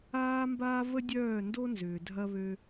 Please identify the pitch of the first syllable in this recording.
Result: high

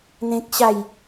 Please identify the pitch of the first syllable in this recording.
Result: high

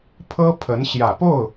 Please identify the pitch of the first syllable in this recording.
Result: high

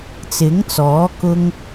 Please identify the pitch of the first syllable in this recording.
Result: rising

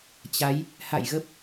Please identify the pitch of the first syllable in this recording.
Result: rising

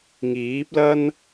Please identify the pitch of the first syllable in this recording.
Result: rising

